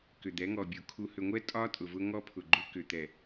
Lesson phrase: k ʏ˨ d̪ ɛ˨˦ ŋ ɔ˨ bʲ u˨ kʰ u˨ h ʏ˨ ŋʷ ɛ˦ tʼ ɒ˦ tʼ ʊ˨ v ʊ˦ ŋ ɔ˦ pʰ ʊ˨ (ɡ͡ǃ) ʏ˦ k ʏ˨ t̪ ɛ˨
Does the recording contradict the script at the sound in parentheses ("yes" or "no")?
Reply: no